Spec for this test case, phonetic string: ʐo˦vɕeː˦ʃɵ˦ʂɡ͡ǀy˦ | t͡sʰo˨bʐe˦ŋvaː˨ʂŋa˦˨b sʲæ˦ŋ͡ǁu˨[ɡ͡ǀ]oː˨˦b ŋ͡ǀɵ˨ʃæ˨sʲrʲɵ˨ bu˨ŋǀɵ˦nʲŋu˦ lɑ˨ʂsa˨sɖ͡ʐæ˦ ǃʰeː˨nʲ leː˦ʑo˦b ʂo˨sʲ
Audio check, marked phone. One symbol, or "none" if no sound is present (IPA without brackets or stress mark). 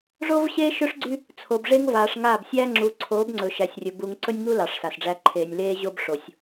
ǀʰ